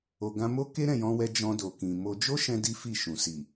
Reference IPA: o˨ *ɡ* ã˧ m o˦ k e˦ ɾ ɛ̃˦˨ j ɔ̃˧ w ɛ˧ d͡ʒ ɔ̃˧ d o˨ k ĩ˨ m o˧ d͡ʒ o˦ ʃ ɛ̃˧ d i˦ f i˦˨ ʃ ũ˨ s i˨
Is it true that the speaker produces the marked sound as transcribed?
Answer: yes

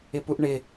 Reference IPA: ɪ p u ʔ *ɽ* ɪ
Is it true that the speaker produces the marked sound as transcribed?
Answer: no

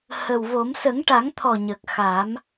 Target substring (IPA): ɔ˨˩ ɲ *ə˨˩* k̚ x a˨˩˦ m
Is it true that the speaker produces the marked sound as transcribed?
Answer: yes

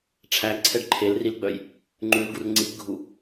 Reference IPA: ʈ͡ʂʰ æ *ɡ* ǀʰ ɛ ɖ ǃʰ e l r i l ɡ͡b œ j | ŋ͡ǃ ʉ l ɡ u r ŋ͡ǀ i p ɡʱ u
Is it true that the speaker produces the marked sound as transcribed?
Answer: yes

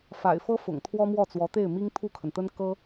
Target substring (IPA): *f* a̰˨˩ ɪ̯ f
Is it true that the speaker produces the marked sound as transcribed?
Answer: yes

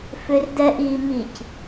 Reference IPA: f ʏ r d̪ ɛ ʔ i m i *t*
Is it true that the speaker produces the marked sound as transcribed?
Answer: no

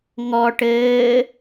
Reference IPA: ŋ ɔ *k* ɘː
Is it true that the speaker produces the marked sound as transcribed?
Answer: no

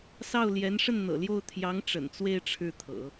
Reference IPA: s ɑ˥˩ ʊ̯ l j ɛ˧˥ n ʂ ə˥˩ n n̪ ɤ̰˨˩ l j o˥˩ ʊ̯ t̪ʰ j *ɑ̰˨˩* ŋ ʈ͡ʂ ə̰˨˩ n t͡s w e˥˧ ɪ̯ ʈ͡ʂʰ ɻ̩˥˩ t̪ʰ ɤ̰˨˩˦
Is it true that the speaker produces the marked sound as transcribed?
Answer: no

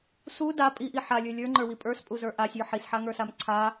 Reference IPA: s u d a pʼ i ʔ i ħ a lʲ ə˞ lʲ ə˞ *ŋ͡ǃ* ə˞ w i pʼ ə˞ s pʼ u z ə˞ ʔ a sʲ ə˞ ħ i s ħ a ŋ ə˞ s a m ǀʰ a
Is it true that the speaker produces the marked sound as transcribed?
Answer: yes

